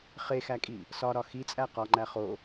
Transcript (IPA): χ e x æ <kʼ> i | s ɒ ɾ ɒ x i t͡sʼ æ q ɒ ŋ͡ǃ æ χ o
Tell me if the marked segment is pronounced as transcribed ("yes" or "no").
yes